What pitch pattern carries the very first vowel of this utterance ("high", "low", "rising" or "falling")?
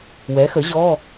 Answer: rising